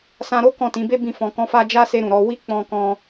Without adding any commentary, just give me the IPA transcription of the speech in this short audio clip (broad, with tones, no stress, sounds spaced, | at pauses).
s ã˧ ɾ o˦ k ɔ̃˦˨ t ĩ˨˦ b e˦ b ĩ˦˨ f ɔ̃˧ k ɔ̃˦ f a˦ d͡ʒ a˦ s e˧ ɾ ũ˨ ɾ ɔ˧ w i˦ k͡p ɔ̃˧ k ɔ̃˧